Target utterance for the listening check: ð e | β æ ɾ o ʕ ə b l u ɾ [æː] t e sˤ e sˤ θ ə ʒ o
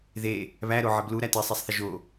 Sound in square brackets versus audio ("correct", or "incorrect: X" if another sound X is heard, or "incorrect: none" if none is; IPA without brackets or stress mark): incorrect: æ